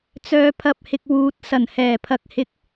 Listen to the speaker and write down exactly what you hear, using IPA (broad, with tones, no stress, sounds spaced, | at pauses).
t͡s œː˨ pʰ ɐ˨ p̚ h ɪ˨ k̚ w uː˨ t̚ s ɐ˨˩ n h ɛː˨˩ pʰ ɐ˨ k̚ h ɪ˨˥ k̚